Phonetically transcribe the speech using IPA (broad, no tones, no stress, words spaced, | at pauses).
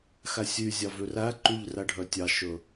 xæsʲyzʲɑ vøræǃʉʎ ræɖʱœtʲɑʃɵ